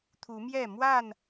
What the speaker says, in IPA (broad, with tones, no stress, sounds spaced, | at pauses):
t̪ʰ u˨˦ m j ɛ˥˨ m w a˥˨ n